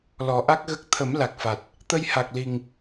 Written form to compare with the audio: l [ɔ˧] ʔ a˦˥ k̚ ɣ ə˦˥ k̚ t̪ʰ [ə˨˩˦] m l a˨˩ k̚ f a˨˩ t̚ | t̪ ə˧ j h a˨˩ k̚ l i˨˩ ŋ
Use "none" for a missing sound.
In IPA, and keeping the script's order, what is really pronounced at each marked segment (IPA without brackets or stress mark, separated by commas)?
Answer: ɔ˨˩˦, ə˨˩˦